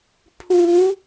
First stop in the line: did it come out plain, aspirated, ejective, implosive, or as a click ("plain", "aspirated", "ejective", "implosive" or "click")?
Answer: aspirated